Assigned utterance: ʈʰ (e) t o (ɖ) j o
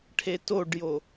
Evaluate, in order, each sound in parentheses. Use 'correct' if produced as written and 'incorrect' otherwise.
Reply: correct, correct

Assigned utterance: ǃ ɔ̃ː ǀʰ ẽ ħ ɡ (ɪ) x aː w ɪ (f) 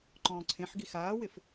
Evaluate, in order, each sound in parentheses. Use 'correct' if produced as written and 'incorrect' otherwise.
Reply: incorrect, correct

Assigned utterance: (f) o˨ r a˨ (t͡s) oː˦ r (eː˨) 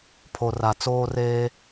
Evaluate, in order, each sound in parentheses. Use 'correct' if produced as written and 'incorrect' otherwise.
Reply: incorrect, correct, incorrect

